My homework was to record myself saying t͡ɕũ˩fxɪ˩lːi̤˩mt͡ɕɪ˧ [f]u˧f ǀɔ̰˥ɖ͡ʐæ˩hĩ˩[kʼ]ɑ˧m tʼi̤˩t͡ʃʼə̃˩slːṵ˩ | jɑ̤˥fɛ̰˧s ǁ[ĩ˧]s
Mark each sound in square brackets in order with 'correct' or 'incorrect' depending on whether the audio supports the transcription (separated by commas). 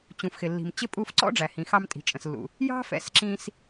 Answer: incorrect, incorrect, correct